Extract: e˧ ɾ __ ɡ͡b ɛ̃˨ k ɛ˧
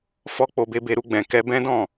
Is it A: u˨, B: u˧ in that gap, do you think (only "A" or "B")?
B